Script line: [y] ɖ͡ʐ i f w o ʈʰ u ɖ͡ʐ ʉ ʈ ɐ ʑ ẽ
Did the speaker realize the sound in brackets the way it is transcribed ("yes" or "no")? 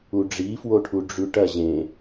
no